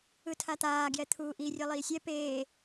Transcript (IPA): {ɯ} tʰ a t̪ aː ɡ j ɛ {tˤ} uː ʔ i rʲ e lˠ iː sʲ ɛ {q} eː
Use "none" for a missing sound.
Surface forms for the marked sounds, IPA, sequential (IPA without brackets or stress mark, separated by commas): ɯ, t̪ʰ, p